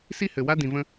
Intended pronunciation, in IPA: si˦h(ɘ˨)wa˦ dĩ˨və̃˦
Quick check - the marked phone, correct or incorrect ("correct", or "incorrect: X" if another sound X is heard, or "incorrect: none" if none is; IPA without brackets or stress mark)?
correct